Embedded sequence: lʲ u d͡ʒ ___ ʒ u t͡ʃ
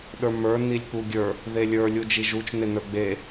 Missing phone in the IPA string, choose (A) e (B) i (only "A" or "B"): B